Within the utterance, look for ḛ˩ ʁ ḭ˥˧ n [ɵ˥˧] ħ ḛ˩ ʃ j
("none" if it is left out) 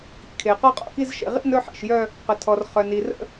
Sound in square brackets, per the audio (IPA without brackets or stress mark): ɵ˥˧